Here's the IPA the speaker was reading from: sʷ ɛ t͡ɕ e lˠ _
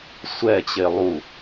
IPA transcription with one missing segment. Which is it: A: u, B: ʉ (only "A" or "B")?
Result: A